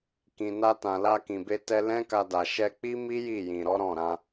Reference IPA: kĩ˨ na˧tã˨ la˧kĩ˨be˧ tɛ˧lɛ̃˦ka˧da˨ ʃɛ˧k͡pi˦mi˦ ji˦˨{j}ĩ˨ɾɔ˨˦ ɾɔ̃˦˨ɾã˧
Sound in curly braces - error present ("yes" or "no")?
no